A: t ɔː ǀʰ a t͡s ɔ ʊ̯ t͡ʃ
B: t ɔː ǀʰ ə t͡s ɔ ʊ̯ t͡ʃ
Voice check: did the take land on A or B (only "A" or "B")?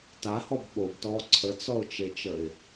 B